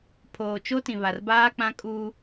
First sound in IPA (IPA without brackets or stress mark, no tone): pʰ